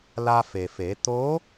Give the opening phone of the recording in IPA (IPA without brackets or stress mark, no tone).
l